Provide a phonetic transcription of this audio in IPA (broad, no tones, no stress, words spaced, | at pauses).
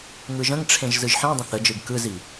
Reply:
ŋɯʒə̃ŋʈ͡ʂʰẽʒ zɯʒħĩdˤə̃ θəd͡ʒɯɡ kɯzi